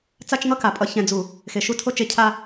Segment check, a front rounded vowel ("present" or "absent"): absent